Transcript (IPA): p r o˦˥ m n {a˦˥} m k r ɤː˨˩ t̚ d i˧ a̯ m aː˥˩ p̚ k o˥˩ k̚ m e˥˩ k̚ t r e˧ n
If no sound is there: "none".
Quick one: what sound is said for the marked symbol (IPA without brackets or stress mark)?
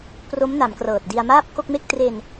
a˩˦